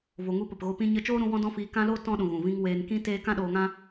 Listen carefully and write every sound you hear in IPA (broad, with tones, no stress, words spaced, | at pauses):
vo˨ŋu˧ pə˨pɣo˧pĩ˦ ɲə˧t͡ʃoː˦ɾũ˧ wɔ̃˦dɔ̃˦fiː˧ kã˦loː˦ tɔ̃˦ɗũ˨ ɣũ˨vĩ˦ŋ weː˧nkĩ˦teː˦ kã˦ɗoː˧ŋã˦